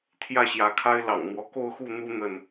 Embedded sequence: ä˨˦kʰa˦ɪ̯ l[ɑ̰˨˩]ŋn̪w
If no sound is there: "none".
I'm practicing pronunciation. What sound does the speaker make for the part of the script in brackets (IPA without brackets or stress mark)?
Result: ɑ̰˨˩